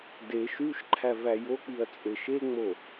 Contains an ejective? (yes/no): yes